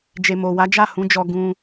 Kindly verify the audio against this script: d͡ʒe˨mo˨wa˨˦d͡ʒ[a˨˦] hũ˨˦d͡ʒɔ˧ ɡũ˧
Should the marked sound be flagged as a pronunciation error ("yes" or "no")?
yes